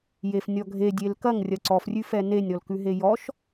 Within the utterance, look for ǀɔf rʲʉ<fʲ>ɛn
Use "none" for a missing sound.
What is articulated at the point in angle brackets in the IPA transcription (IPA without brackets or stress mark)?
f